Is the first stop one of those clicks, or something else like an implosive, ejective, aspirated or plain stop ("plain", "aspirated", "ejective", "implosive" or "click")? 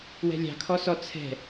aspirated